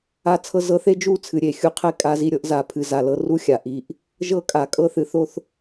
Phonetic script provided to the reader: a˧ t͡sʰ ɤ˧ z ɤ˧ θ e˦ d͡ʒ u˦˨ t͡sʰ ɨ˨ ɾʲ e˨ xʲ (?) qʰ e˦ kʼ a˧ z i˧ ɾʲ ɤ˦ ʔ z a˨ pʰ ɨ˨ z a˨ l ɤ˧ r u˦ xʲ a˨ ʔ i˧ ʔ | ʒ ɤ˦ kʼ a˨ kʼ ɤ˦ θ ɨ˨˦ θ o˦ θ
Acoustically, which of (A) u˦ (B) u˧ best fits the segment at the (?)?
B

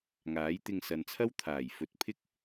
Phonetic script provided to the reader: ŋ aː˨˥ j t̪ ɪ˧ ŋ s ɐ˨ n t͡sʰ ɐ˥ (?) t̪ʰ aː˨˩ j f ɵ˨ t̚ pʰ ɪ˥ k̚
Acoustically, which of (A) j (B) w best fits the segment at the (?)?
B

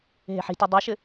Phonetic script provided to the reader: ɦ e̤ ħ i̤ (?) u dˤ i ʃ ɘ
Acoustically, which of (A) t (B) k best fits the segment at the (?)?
A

